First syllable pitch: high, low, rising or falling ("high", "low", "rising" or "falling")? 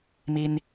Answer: high